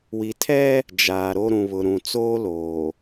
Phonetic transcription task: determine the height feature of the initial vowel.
high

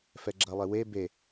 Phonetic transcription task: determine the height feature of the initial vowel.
mid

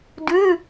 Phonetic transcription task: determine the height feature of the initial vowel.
high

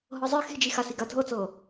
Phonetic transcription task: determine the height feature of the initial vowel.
mid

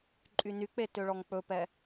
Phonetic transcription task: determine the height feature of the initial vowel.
high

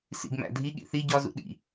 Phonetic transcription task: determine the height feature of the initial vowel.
high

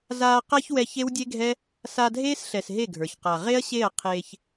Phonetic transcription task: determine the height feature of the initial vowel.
low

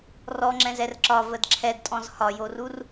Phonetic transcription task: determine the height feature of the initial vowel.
mid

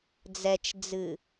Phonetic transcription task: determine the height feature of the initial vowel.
mid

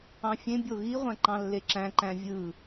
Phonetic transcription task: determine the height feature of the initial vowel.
low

